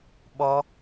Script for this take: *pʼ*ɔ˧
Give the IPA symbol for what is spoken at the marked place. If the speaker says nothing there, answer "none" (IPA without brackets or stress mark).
ɓ